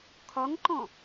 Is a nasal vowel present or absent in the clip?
present